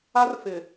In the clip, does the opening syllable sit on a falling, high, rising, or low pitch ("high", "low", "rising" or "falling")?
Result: high